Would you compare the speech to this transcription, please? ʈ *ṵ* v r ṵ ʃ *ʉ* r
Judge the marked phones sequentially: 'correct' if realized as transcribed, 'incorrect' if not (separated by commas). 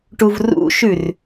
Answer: incorrect, correct